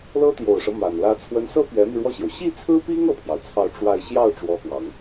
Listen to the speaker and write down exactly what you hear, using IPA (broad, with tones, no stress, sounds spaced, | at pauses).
l ɤ˥ t̪ j o˨˩ ʊ̯ ʂ ɤ˦ m a˨˩ n l ä˧˥ t͡sʰ w ə˧˥ n s ɤ˥ p ɥ ɛ˧˥ m i˧ ɻ w ɔ˥˩ ɕ j o˩ ʊ̯ ɕ i˥˩ t͡sʰ ɹ̩˥ p i˥ ŋ ɤ˥˩ pʰ j ɑ˩ ʊ̯ t͡sʰ ɑ˥˧ ʊ̯ ʈ͡ʂ w a˥˧ ɪ̯ ɕ j ɑ˥˩ ʊ̯ ʈ͡ʂ w ɔ˧˥ x w ɑ˨˩˦ ŋ